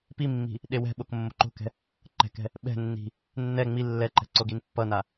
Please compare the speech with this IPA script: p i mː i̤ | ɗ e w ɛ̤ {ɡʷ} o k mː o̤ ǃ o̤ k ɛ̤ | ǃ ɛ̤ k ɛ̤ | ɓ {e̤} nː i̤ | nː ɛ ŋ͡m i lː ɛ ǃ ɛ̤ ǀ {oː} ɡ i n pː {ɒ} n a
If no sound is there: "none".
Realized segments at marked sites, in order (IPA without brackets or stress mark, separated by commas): ɓ, ɛ̤, o, ʌ